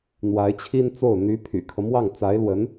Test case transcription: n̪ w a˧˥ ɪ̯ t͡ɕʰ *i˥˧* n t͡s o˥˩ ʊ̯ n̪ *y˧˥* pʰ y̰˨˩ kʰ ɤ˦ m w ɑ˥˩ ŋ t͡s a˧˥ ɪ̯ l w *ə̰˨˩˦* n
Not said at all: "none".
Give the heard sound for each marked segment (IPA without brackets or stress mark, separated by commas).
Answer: i˥, y˧˥, ə˧˥